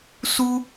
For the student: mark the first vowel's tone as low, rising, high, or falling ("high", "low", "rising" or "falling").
high